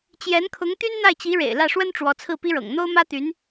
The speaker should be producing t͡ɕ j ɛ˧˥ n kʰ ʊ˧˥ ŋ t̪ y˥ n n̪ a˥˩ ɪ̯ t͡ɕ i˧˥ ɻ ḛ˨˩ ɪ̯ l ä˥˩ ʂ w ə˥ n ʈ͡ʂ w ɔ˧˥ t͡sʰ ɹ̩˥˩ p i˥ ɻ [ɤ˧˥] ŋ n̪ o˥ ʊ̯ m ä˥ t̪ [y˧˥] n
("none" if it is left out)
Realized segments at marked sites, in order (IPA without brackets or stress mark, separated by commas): ɤ̰˨˩, y˧˥